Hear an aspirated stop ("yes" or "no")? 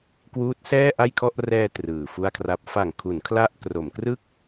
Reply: yes